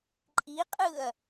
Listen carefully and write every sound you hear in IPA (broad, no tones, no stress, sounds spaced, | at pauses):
ǃʼ i qʼ ɯ ɐ̯